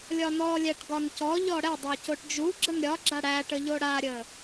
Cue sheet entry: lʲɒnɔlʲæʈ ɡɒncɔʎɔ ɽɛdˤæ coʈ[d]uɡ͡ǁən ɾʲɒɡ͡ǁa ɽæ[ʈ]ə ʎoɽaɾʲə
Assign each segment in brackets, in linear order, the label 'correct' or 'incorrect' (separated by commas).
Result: incorrect, correct